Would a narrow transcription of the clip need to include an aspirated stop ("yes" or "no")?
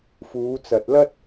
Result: no